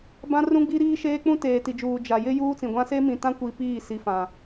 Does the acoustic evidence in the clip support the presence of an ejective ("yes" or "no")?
no